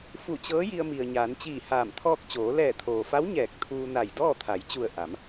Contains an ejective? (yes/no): no